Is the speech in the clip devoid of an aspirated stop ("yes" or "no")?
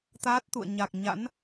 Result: yes